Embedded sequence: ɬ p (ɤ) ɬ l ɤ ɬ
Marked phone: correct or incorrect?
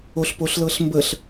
incorrect